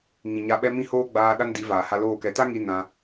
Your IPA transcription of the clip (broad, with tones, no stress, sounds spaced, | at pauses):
ŋ ĩ˨ ɲ a˧ ɓ ɛ˦ m ĩ˦ h oː˦ ɡ͡b aː˧ ɗ a˦ n d i˨˦ v aː˨ h a˧ l oː˦˨ k ɛ˧ t a˦ ŋ i˦ n ã˧